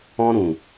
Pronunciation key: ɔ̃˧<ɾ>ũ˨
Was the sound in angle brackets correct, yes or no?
yes